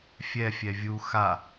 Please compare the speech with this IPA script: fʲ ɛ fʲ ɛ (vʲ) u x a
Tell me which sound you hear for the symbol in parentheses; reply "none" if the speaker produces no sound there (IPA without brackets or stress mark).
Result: vʲ